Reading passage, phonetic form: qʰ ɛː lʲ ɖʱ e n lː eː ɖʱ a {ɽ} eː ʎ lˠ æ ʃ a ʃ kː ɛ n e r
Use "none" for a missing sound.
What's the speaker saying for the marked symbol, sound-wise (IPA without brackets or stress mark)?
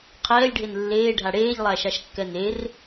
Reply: ɽ